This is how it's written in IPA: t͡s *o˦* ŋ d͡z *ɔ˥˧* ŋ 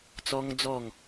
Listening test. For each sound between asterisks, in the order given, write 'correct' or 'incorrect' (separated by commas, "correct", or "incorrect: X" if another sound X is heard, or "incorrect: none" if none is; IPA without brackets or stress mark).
incorrect: ɔ˦, correct